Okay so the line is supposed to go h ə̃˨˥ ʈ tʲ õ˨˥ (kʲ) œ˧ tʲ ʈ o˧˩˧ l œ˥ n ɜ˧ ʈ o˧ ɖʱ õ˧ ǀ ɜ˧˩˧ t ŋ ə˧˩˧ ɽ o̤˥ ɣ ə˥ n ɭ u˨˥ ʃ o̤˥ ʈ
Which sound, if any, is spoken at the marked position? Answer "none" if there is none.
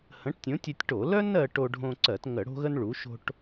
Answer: tʲ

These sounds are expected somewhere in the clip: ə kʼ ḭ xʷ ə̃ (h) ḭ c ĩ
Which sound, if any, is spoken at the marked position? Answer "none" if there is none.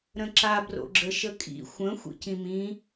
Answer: xʷ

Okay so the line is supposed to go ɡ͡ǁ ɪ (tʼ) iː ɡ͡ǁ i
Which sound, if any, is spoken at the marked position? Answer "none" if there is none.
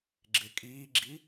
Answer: kʼ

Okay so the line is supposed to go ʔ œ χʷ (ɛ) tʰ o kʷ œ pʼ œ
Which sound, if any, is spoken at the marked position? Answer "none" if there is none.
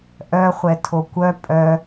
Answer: ɛ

